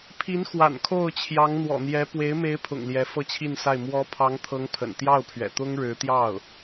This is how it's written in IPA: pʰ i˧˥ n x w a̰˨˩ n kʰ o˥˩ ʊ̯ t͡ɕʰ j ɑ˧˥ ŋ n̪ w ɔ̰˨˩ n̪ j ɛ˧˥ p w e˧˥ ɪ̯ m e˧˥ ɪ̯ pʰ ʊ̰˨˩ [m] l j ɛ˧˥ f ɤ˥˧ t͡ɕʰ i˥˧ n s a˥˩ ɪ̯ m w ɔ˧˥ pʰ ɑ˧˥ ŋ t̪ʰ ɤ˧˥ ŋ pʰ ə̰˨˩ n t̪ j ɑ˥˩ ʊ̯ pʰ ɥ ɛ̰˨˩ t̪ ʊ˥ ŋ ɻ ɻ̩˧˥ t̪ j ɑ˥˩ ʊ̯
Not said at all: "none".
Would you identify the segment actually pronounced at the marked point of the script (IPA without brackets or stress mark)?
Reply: ŋ